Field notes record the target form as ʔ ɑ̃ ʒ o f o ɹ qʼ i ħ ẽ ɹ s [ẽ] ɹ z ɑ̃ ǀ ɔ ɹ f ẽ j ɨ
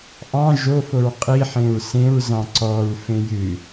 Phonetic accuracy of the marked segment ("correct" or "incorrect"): correct